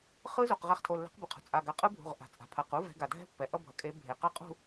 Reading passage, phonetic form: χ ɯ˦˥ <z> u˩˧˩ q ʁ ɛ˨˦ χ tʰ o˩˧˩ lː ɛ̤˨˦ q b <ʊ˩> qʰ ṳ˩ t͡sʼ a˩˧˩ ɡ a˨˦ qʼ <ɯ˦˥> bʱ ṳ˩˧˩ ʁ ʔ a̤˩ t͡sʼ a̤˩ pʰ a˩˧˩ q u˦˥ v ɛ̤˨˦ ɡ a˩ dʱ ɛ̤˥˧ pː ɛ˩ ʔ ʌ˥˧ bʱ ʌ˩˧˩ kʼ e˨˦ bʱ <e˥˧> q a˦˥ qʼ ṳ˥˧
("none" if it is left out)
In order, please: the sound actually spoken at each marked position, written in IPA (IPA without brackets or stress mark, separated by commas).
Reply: z, ɯ˩, ɯ˦˥, e˩